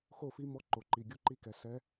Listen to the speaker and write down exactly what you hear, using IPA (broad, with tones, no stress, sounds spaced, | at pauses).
x o˦˨ f i˧˥ m ɔ˧˥ ǃ o˩ ǃ i˩ ɡʲ o˦˨ ǃ i˦˨ k ɛ˩ s ɛ˧˥